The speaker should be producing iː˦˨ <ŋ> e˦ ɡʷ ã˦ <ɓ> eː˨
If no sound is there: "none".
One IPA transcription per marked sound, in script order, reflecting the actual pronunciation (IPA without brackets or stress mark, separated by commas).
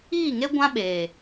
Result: ŋ, ɓ